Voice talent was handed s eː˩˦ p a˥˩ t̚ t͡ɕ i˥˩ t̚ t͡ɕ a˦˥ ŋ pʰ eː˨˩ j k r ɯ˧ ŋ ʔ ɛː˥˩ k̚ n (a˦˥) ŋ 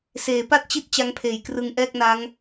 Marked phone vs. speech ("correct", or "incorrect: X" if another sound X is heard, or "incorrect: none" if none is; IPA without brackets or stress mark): correct